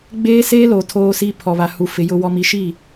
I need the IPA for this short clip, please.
ɡ͡b eː˦ s eː˦ l o˨ tʰ oː˨ s i˨ pʰ ɔ˨ β a˨ h u˨ f ɪ˨ j ʊ˨ w ɔ˨ m i˨ ʃ i˦˨

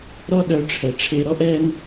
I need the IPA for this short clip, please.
ɾ ɔ˥ ɗ œ˧ ʈ͡ʂʰ ɛ˩ ʈ͡ʂʰ e˧ ɾ ɔ˥ ʔ ɛ˥ n

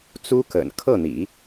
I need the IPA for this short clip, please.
t͡s u˥ k ə̰˨˩ n kʰ ɤ˥˩ n̪ ḭ˨˩˦

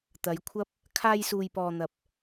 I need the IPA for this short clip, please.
t̪ ɐ˨˧ j kʷʰ ɐ˥ p̚ | kʰ aː˧ j s uː˨ j p ɔː˨ n̪ ɐ˨ p̚

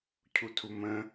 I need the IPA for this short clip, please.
cʰ u tʰ u m ə̃

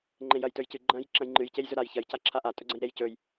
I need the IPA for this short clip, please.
ŋ͡ǃ ẽ j ɐ j t ɵ j c ɨ ɡ͡ǃ ɐ̃ j ǁ ɐ̃ j ŋ͡ǃ ɨ j c e j z ɵ ɾ a j ç ɐ j c a ǁʰ a ʔ a tʼ ɵ ɡ͡ǀ ɐ̃ j ɾ e j c ɵ j

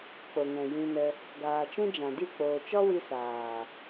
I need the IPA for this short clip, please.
k͡p o˨ ŋ ɛ̃˨ j ĩ˧ n ə˧ | ɡ aː˨ t͡ʃ ũ˦ d͡ʒ ã˨ d i˦˨ k͡p oː˨ t͡ʃ ɔ˦ w i˧ s aː˨

